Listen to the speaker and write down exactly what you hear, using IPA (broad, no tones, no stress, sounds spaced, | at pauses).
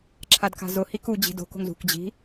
ǁʰ a d k a̤ z ʊ h i k u d͡ʑ i̤ d o̤ k o̤ ŋ z ṳ k d͡ʑ i̤